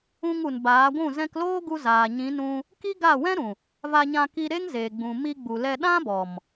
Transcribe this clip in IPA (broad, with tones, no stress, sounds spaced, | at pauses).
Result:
ũ˧ ŋ u˨ n b aː˨˦ ɡʷ ũ˦˨ z ɛ̃˧ k l oː˦ ɡ u˧ z aː˨ ɲ ĩ˨˦ n ũ˧ | k i˦ ɡ a˦˨ w ɛ̃˦ ɾ ũ˨ | v a˧ ɲ ã˧ k i˧ ɾ e˦ ŋ z eː˨ ɡ͡b ũ˨ m i˧ ɡ͡b u˨ l ɛ˧ ɗ ã˦ b ɔ˨ m